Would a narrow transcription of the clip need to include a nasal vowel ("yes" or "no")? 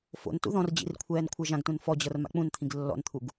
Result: yes